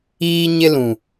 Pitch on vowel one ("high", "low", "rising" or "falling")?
high